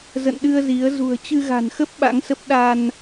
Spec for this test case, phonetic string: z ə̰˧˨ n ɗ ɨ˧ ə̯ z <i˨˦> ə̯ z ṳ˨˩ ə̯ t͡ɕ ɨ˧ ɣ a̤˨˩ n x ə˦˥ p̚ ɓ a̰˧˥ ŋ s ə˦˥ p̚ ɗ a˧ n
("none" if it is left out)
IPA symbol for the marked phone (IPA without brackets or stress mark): i˨˦